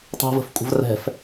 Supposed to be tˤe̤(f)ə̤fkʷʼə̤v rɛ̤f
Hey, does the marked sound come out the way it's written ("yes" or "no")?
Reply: no